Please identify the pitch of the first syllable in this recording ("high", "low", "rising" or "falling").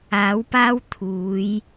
rising